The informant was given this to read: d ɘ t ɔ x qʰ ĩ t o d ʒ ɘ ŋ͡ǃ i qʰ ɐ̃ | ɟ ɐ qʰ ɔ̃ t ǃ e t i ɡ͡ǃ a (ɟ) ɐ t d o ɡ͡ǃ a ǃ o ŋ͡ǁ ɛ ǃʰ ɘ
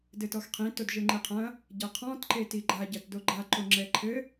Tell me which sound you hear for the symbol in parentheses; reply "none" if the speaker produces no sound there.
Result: ɟ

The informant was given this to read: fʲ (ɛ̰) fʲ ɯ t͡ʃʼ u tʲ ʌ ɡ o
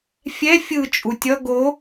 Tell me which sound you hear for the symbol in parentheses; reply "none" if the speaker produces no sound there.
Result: ɛ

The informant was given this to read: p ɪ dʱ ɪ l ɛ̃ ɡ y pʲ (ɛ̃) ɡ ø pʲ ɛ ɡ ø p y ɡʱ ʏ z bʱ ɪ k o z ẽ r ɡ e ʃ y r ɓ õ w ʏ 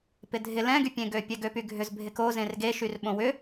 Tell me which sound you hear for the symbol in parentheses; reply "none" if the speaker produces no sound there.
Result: ẽ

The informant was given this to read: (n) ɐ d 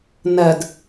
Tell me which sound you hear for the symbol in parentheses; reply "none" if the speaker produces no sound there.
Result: n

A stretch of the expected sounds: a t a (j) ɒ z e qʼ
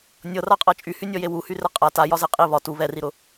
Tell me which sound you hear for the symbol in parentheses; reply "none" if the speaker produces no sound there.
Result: j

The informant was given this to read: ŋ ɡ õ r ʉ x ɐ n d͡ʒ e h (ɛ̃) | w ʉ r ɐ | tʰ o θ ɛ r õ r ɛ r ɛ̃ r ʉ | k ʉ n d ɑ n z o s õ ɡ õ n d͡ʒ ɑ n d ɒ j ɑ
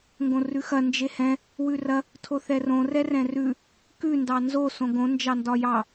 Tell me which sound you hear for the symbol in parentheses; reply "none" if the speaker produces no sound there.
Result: ɛ̃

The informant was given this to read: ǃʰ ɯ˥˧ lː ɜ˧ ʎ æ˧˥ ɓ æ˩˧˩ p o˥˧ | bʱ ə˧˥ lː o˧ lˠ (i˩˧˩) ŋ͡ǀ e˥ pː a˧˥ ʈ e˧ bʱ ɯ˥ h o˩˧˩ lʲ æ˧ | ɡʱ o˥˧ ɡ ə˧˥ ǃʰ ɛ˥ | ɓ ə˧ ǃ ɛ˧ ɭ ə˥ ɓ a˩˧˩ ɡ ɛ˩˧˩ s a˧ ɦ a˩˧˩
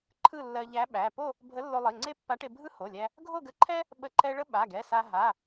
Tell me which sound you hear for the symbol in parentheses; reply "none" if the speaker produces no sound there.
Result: i˩˧˩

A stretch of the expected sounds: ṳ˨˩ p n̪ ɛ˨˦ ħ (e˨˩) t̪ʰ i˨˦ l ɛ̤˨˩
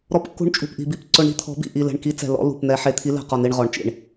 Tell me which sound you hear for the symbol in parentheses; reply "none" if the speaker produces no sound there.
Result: e˨˩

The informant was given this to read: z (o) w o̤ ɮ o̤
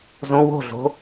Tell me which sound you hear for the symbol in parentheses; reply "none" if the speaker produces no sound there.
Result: õ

